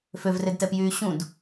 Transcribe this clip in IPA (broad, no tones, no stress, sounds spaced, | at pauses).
f ø v r e d t ɛ p j yː ɕ ũ d